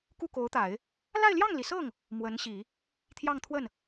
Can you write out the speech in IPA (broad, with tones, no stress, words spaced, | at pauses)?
ku˥˩ko˧˥ʊ̯t̪a˨˩˦ɪ̯ | la˥˧ɪ̯ljɑ˥˩ŋli˩sɤ˥˩ŋ | mwə˧˥nɕi˨˩˦ | t̪ʰjɑ˥˧ŋt̪ʰwə˥˩n